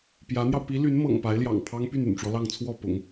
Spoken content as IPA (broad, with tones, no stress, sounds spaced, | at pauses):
p j ä˧˥ n̪ j ɑ˧ ʊ̯ p i˧˥ l y˧˥ n m ɤ̰˨˩ ŋ p a˧˥ ɪ̯ l j ɑ̰˨˩ ŋ pʰ ɑ˥ ŋ p y˥˩ n y̰˨˩ n ʈ͡ʂ w ɔ˦ l ɑ˥˧ ŋ t͡sʰ w ɔ˥˩ p ʊ̰˨˩˦ ŋ